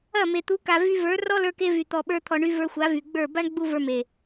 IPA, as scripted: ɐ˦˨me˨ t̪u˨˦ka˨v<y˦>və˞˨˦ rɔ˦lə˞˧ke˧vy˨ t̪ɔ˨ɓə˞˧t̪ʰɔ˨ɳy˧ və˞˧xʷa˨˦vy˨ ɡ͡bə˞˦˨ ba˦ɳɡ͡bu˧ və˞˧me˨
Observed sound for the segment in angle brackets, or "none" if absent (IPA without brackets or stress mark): y˧